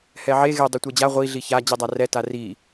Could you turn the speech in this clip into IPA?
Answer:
h ɛ ʕ e ɣ e dˤ i tʷ ɛ d͡ʑ a ʁʷ i ɮ i ç a d͡ʑ i dˤ a r ɛ t a r i

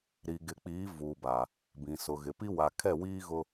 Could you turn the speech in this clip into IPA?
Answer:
ɾ i˨ ɡ ɪ˨ k͡p iː˨˦ v uː˨ b aː˨ | b ĩ˨ s ʊ˨ ɣ ɪ˨ p i˦ w a˨ kʰ ɛ˦˨ w iː˦ ɣ ʊ˦

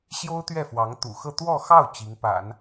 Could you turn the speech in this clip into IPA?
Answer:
ɕ j o˥ ʊ̯ t̪ ɥ ɛ˥˩ f w ɑ˧˥ ŋ t̪ ṵ˨˩ x ɤ˥˧ t̪ w ɔ˥˧ x ɑ˥˩ ʊ̯ t͡ɕ i˧˥ ŋ p a̰˨˩˦ n

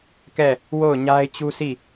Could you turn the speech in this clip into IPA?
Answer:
k ɛ˦˨ | w o˦˨ ʊ̯ ɲ a˦ ɪ̯ t͡ɕ u˦ s i˦˨

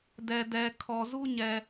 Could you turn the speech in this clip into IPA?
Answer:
d ɛ˨ d ɛ˨ kʰ ɔ˨ z u˦ ɲ ɛ˨

